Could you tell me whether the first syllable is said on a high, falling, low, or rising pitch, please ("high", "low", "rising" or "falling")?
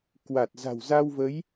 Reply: low